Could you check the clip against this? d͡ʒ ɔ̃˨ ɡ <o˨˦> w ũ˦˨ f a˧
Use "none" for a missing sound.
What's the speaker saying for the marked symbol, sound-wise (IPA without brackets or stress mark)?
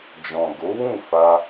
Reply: o˨˦